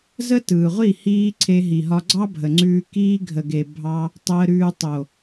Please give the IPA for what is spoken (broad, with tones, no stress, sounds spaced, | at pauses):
z ə˦ t ɯː˨ ʁʷ i˦˨ h iː˦ ǀʰ e˧ ɦ i˨ ɦ ɒ˧ ɡ͡ǀ ɑ˦ bʱ ə˨ ŋ͡ǀ ʉː˧ k iː˧ ɡʱ ə˨ ɡ e˨ bʱ ɑ˦ | tˤ əː˧ ɾ ʉː˧ tˤ o˨